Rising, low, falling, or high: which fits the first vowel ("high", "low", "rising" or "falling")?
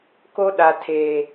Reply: high